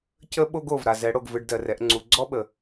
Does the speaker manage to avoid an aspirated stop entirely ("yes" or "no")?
yes